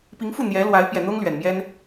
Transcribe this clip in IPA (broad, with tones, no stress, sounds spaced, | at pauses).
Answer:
p i˧˥ ŋ f u˥˩ n̪ j ɛ˧˥ l w a˧˥ ɪ̯ p j ɛ˨˩ n̪ ʊ˥ ŋ l ɥ ɛ˨˩ n m j ɛ˥ n